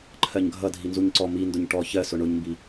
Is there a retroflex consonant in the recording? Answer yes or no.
yes